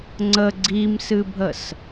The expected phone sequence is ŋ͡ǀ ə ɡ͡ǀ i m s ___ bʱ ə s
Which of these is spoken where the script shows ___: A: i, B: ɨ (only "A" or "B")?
B